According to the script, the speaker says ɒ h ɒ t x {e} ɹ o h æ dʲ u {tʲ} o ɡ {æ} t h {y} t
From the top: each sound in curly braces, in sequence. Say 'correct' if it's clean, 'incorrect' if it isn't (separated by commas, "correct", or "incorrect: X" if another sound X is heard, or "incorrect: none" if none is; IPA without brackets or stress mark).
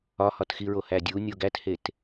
incorrect: i, incorrect: nʲ, correct, incorrect: e